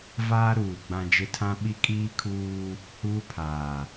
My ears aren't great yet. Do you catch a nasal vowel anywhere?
yes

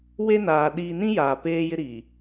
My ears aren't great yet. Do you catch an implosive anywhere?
yes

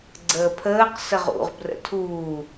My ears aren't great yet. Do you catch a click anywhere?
yes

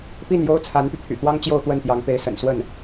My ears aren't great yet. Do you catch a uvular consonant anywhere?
no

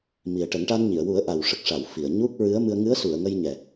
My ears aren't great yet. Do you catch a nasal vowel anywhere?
no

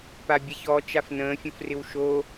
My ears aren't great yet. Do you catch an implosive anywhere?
no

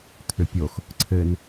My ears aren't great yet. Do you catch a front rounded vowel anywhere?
yes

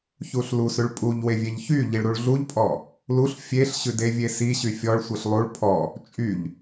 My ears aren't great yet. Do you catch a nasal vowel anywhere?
no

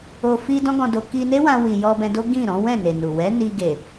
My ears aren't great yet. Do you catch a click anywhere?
no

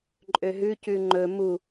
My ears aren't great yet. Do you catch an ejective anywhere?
yes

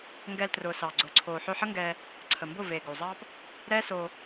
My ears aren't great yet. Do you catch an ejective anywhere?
no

